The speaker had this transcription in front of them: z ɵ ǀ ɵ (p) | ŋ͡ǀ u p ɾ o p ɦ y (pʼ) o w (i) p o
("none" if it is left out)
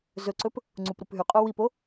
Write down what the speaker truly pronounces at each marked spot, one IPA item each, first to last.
p, qʼ, i

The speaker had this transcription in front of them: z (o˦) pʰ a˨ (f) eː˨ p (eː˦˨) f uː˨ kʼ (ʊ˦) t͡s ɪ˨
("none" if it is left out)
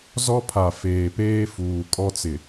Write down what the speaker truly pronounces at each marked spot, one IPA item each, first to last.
ɔ˦, f, eː˦, ɔ˦

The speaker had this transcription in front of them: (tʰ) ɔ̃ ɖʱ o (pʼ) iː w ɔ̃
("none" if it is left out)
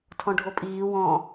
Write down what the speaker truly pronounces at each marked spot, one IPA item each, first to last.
tʰ, pʼ

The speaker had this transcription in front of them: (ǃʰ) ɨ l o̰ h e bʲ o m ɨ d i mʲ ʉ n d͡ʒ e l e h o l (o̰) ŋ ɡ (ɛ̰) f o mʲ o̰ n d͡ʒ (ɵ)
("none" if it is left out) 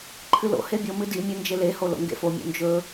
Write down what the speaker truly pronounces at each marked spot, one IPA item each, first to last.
ǃʰ, o̰, ḛ, ɵ

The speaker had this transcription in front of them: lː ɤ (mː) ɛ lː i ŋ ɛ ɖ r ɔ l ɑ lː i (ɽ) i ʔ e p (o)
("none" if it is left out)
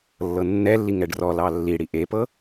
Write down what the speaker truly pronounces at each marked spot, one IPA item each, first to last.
nː, ɽ, ɤ

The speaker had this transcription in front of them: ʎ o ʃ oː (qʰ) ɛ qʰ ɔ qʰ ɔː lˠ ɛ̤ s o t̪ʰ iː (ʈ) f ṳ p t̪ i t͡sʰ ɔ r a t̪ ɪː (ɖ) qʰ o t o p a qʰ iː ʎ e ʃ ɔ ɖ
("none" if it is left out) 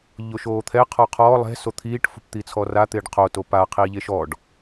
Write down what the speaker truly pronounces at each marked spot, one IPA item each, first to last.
t̪ʰ, ʈ, ɖ

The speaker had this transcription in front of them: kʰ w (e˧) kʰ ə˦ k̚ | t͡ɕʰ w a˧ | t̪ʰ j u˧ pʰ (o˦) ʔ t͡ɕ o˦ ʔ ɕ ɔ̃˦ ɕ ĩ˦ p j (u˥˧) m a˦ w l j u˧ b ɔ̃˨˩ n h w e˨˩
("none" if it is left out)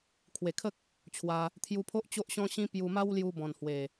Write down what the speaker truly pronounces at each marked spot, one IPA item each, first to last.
e˨˩, o˦, u˧

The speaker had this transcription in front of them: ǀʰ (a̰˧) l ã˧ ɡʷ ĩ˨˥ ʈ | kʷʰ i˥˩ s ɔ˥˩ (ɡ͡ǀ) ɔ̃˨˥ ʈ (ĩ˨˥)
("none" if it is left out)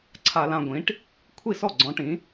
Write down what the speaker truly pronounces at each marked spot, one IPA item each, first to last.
a˧, ɡ͡ǀ, ĩ˨˥

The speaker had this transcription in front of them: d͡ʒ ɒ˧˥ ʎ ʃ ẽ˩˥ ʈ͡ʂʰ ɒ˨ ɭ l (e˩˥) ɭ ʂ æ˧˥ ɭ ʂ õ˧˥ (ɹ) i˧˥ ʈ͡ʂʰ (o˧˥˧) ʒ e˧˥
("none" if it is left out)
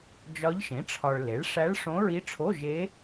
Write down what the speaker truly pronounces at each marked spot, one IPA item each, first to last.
e˩˥, ɹ, o˧˥˧

